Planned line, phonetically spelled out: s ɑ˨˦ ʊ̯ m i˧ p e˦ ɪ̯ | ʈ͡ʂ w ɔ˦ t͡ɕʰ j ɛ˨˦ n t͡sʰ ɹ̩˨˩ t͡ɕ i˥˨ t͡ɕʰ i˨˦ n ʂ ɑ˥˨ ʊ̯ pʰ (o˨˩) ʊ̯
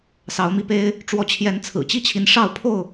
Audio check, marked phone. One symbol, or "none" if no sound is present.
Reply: o˥˨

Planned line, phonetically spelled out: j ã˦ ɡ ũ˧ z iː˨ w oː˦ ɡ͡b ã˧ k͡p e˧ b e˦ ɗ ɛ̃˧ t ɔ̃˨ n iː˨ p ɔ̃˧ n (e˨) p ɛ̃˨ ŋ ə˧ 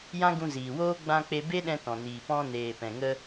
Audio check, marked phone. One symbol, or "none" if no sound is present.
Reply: eː˨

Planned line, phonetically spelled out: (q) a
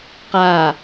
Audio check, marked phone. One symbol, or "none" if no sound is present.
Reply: q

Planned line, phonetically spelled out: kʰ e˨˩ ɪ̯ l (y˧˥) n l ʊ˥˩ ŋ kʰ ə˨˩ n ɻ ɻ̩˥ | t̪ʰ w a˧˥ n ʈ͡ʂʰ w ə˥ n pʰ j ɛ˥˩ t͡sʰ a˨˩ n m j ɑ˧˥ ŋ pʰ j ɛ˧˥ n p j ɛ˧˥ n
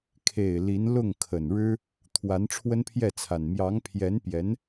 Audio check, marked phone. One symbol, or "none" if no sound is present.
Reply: i˧˥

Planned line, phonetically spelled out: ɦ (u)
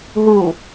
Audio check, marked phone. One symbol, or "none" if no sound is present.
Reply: u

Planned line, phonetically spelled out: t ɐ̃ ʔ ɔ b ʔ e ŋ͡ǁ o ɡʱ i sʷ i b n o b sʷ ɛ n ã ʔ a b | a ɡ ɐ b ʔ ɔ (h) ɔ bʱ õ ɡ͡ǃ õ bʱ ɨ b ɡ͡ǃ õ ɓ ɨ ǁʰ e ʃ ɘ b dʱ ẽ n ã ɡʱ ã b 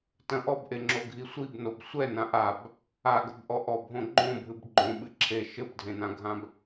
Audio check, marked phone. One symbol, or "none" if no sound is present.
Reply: ʔ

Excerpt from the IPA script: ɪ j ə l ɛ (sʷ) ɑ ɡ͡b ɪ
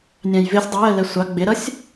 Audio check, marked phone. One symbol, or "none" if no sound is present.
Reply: sʷ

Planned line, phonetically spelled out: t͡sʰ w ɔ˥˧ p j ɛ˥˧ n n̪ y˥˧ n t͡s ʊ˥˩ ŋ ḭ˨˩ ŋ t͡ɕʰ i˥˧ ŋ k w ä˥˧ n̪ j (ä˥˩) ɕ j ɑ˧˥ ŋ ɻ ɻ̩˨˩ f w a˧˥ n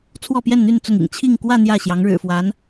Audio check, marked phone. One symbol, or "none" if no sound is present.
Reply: ä˥˩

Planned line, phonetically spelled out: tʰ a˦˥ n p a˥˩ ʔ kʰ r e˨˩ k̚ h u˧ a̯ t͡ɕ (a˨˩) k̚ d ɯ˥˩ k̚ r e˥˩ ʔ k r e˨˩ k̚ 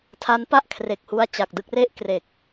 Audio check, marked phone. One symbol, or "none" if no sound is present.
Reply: a˨˩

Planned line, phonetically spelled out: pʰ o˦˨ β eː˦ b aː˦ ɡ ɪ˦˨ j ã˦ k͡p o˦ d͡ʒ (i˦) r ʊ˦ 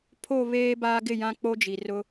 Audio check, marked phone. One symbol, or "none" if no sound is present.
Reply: i˨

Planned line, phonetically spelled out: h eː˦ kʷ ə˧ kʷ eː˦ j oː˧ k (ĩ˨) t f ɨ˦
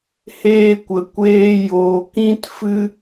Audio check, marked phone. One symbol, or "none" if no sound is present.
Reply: ĩ˦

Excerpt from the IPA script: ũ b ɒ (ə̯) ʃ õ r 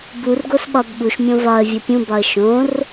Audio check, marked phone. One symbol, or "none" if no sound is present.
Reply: ə̯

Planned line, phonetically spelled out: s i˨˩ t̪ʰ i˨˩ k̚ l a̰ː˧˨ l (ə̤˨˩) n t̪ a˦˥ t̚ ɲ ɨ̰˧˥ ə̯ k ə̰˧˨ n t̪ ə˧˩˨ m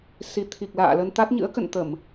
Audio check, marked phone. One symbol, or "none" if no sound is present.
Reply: ə˧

